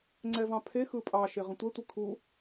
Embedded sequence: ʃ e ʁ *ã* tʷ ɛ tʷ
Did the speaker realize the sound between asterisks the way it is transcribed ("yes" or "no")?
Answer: no